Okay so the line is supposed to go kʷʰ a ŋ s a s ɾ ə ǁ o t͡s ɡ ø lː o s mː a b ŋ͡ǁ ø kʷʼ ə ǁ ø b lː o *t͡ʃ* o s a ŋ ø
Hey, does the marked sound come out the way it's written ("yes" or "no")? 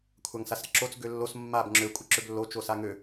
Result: yes